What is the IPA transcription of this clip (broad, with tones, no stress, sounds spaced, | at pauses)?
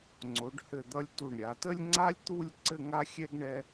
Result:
ŋ͡ǀ o˩˧ ɖ h ɘ˧˩ d̪ ʌ˧ lʲ t u˧˩ ɳ ɾʲ a˩˧ t ə˥ lʲ ŋ͡ǀ a˥ lʲ t̪ u˥˧ lʲ ǀ ɘ˥˧ ŋ a˥ xʲ ɛ˥ ɡ ɳ ɛ˥